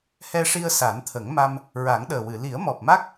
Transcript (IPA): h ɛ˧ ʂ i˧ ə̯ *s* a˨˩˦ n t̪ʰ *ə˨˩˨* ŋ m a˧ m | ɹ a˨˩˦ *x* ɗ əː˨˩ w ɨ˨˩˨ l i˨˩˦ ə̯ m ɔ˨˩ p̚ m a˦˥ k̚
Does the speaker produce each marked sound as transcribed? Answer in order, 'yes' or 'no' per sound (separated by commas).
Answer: yes, no, no